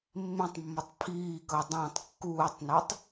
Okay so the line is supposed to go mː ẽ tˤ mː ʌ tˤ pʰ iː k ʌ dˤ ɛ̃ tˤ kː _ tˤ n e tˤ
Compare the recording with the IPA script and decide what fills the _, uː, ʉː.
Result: uː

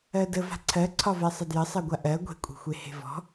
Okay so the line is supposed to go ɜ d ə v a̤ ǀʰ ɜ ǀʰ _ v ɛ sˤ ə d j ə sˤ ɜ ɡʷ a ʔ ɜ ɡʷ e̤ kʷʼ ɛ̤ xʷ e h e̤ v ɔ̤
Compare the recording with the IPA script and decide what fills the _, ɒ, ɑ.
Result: ɒ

